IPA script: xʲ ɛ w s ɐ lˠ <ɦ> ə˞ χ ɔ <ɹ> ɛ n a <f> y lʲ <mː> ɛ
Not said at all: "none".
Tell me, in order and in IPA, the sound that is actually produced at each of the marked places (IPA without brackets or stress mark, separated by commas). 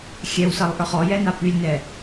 ʔ, j, p, n